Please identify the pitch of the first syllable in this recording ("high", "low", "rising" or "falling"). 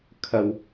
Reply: low